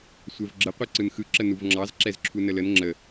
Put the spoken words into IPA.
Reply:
sʷ ɛ v ɡ͡ǁ ə qʷ ɛ ǀ ɯ n x ɯ ǁ ə n u v ŋ͡ǁ ɑ z ǁ ɛ z ǁʰ u n ə l ə n ŋ͡ǁ ə

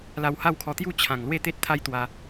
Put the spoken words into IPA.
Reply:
l a˧ w h a˥˧ w kʰ ɔ˧ t̪ j u˥˧ t͡ɕʰ ã˨˩ ŋ l w e˥˧ t̪ e˦ t̚ t̪ʰ a˦ j t̪ w a˧

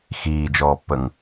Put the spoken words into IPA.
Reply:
x iː d͡ʒ ɔː pː ə ŋ

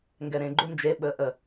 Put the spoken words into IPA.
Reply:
ŋ ɡ ɛ ɾ ẽ ɡ͡ǃ u n d͡ʒ e ɓ əː ʔ ə

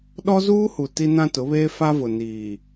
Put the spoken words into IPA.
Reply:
ɗ ɔ˦ z uː˦ h u˨ t i˦ n ã˦ t ʊ˨˦ β eː˦ f a˦ v ʊ˨ n iː˨

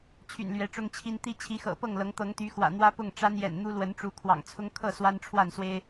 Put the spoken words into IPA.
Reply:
t͡ɕʰ y̰˨˩ n l ɥ ɛ˨˦ ʈ͡ʂ ʊ˦ ŋ t͡ɕʰ i˦ n t̪ i˦ t͡ɕʰ i˨˦ x ɤ̰˨˩ p ɤ˥˨ ŋ l ɤ˨˦ ŋ t̪ ɤ˨˦ ŋ t̪ y˨˦ x w ä̰˨˩ n̪ w ä˦ p ʊ˥˨ ŋ ʈ͡ʂ a˦ n j ɛ̰˨˩ n n̪ u˦ l w ə˨˦ n ʈ͡ʂ u˨˦ kʰ w ɑ̰˨˩ ŋ t͡sʰ ʊ˦ ŋ kʰ ɤ˥˨ s w a˦ n ʈ͡ʂʰ w a˥˨ n s w e˦ ɪ̯

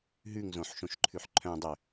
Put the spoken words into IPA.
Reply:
ɦ ʉ ŋ z õ ħ ʃ õ ʃ ǃʰ ʉ ħ ǃʰ œ̃ dˤ ø

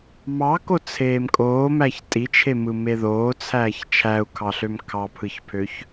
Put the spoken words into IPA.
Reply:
m ɑ k o t͡sʰ eː m kʼ oː m æ ç tʼ i t͡ʃʰ e m ɯ m e ð oː t͡sʰ æː ç t͡ʃʰ æ u̯ kʰ ɑ ɬ ø m kʰ ɑ pʰ ɯ ç pʰ ø ç

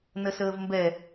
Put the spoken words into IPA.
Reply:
n ə s əː v m b ɛ

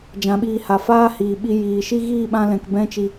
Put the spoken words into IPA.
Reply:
d͡ʒ ã˨˦ ɓ iː˧ h a˨ f aː˦ h iː˨ ɓ i˧ j iː˨ ʃ i˦ ɣ iː˦˨ ɓ ã˧ l ɛ̃˨ k b ɛ̃˧ t͡ʃ i˨

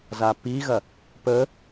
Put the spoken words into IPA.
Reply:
z a p i ɣ ɐ | p ə

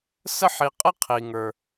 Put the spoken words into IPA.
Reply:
s ə˦ ħ i˨ qʼ ə˦ qʰ i˨ ŋ ə˞˨

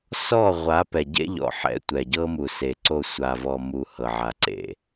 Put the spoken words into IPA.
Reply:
s ɔ˦˨ ʁʷ a˨˦ p ɛ˨ ɟ ḛ˦ ʎ ɔ̰˨ ħ ɛ̰˨˦ tʷ ɛ˨ ɟ ɤ˦ m u˨ s e˨ ǀ o˦˨ sʷ a˨ v ɔ˨ m u˨ h ɤ˨ ʕ a˨ ǀ ḛ˨

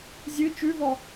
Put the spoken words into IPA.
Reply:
zʲ ɨ t͡ʃ ʉ v ɔ

